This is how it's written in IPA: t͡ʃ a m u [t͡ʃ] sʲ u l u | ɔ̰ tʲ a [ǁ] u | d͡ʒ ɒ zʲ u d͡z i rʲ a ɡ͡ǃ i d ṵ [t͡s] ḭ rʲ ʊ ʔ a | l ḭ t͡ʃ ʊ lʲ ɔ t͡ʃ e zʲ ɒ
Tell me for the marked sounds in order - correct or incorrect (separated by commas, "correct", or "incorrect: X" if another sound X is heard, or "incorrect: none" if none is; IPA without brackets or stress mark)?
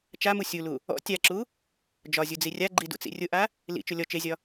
incorrect: none, correct, correct